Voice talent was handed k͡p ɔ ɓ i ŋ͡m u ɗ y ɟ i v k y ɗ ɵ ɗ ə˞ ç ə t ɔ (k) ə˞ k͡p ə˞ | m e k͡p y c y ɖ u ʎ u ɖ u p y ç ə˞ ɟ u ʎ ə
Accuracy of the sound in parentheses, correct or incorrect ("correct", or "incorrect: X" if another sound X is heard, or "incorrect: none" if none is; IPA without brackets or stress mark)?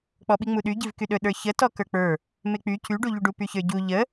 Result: correct